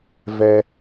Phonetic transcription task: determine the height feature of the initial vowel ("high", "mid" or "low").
mid